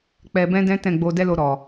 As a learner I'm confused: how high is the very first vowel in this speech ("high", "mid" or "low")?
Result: mid